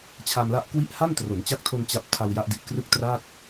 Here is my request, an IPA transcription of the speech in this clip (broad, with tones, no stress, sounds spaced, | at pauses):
t͡ɕʰ a˧ m l a˦˥ ʔ k w i˥˩ ʔ h a˥˩ n t r o˩˦ n t͡ɕ a˦˥ k̚ tʰ o˧ n t͡ɕ a˦˥ p̚ tʰ a˧ w j a˦˥ ʔ d i˨˩ ʔ k r ɯ˥˩ k̚ t r a˥˩ t̚